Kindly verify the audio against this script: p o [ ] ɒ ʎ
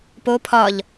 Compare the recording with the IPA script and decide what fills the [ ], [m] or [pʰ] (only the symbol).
pʰ